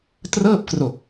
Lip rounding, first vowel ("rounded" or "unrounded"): unrounded